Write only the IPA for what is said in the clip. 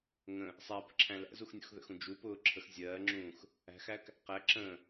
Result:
ŋ ə̃ | sˤ æ p ə̤ ǁʰ æ̃ l æ̰ z u x nʲ ṵ x ð ə̰ x ũ d͡ʒ u p ʊː ǁʰ ə x zʲ ɜː ŋ͡ǁ ũː x | æ̤ x æ k | q æ ǁ ə̃ː

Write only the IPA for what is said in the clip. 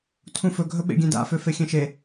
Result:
tʰ ũ f ɵ ɡʱ ɵ ɓ ḛ ɡʲ ẽ d a̰ f ø f e xʲ ẽ ʃ e

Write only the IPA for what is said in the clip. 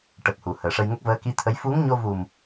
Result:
ʈ ə˨˩ k̚ h u˨˩˨ h əː˨˩ ʂ ə˧ j ŋ ə˦˥ k̚ v əː˧˥ k i˧˥ t̪ʰ ə˧˥ j f u˧˥ ŋ ɲ o˧ v u˨˩ m

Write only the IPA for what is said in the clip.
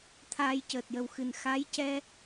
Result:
t̪ʰ aː˧ j c əː˨˩ t̚ j ə˨˩ w x ɨ˨˩ n x a˧˥ j c ɛ˧

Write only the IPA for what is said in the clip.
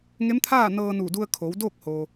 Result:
ŋ e˧˥ m t̪ʰ aː˥˨ n ɤː˧ n uː˧˩ d u˧ ə̯ kʰ oː˩˧ w d oː˥˨ k̚ h oː˩

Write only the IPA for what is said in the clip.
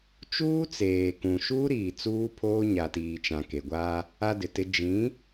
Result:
t͡ʃ uː˦ t͡s eː˨ k ũ˨ ʃ uː˦ ɾ iː˨ t͡s uː˦ pʰ oː˦ ɲ a˨ t iː˨ t͡ʃ ã˨ k e˨ ɡʷ aː˦ | a˦ d ɪ˨ t ɪ˦ d͡ʒ ĩ˨˦

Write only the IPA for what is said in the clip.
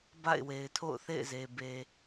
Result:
b a̰˦˨ ɪ̯ w e˨ ɪ̯ tʰ o̰˦˨ ʊ̯ θ ḛ˦˨ ɪ̯ z e˨ b e˨

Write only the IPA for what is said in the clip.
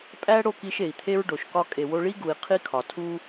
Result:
pʼ æ˦ ɽ o˦˨ k i˧ ʃ e˨ i̯ t̪ʰ e˦ ɹ ɖ o˨ ʃ k ɒ˦ kʼ e˨ w o˧ ɭ i˦ ɡ u˨ i̯ qʰ i˦ kʰ ɒ˨ tʰ u˦

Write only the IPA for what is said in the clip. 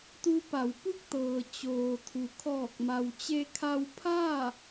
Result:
t̪ u˧ p a˩˧ w p u˥˨ k̚ t̪ ɤː˩ t͡ɕ oː˩ t̪ʰ u˩ kʰ ɔː˧˩ k̚ m a˩ w t͡ɕ e˧ kʰ a˧ w pʰ a˥˨

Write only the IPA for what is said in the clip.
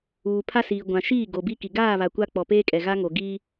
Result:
uː˨ pʰ a˦ s iː˨ ɡʷ ã˨ ʃ iː˦˨ ɡ o˨ b i˦ k i˨ ɡ aː˦˨ β a˨ kʷ a˦ k͡p ɔ˨ p eː˦ kʼ ɛ˨ ɣ a˦ ŋ o˨ ɡ iː˦

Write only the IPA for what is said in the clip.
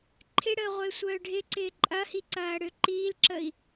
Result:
ǃʰ ɪ ɽ əː ʁʷ ɪː sʷ œː ɖʱ ɪ ǀ ɪː ǃʼ ɐ h i ǀ ɐː ɽ ø ǃ iː l ǁ ə i̯

